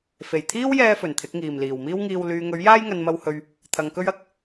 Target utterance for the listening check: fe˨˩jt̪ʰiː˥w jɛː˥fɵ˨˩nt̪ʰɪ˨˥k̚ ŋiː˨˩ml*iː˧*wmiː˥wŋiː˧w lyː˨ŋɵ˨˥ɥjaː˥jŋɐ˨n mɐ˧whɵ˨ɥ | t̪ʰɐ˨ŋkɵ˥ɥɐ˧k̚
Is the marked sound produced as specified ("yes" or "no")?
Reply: no